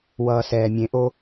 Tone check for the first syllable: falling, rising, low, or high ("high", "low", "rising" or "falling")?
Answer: low